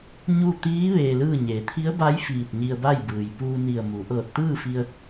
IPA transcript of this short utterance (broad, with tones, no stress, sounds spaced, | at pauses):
ɲ u˥˨ t̪ iː˧˥ ʋ eː˧ l ɯː˥˨ ɲ eː˩˧ t̪ʰ i˧˥ ə̯ b a˧˥ j f iː˧˩ t̚ ɲ i˧ ə̯ b a˥˨ j b ɯː˩ j p uː˧ n i˧˩ ə̯ m u˩˧ ʔ ɤː˧˩ t̚ t̪ ɯː˥˨ f i˧ ə̯